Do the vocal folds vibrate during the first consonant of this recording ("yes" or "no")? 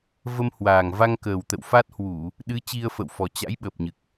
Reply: yes